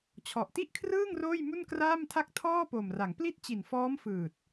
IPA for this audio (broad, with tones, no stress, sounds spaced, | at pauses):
t͡ɕʰ ɔ˨˩ ʔ t i˥˩ ʔ kʰ r ɯː˥˩ ŋ r oː˥˩ j m u˥˩ n k r aː˥˩ m tʰ a˥˩ k̚ tʰ ɔː˥˩ p o˨˩ m r a˩˦ ŋ p l i˥˩ t̚ t͡ɕ i˨˩ n f ɔː˦˥ m f ɯː˨˩ t̚